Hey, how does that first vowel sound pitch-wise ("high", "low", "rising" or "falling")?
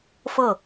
falling